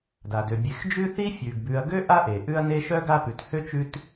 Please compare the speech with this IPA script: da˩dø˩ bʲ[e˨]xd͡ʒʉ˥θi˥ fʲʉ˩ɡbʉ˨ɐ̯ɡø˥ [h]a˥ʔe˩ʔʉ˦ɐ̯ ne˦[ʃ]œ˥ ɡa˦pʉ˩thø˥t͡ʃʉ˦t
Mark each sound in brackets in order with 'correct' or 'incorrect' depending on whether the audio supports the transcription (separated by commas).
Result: correct, incorrect, correct